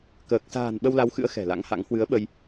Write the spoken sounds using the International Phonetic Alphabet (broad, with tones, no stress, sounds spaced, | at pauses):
k əː˨˩ k̚ s a̤ː˨˩ n ɓ ə˧ w l a˨˦ w x ɨ̰˧˥ ə̯ x ɛ̤˨˩ l a̰˧˥ ŋ h a̰˧˥ ŋ h w ɨ˨˦ ə̯ ɓ ə˧ j